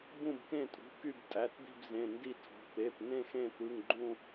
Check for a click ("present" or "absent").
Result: present